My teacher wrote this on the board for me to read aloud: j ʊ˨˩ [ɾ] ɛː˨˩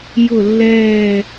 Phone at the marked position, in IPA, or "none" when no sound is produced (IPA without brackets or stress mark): lː